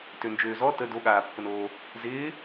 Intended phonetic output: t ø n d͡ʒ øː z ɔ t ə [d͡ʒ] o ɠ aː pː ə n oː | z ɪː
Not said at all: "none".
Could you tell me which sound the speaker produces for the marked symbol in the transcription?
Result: d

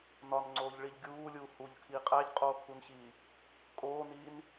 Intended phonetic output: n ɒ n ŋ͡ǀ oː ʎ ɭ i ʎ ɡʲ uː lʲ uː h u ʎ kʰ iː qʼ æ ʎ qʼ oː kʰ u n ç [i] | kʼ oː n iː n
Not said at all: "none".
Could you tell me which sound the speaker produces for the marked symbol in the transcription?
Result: iː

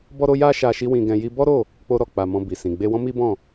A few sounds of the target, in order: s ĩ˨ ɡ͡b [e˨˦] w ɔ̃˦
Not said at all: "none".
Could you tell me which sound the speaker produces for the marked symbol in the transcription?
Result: e˧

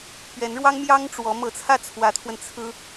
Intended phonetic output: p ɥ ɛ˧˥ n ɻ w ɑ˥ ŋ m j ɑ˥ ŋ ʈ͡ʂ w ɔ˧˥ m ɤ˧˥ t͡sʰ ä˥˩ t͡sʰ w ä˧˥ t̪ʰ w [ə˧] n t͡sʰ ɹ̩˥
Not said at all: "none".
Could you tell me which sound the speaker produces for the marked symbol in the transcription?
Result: ə˧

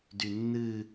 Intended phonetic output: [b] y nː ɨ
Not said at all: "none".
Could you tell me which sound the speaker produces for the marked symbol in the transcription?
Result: d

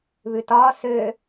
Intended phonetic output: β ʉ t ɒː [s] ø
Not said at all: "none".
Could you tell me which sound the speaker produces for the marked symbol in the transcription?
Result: s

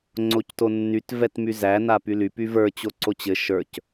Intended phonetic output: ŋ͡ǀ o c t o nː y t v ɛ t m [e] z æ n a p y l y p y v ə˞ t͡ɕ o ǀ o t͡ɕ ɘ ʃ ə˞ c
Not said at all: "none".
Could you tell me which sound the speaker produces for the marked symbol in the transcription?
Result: y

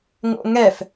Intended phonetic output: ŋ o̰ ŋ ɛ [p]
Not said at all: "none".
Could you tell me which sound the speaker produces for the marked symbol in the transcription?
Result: f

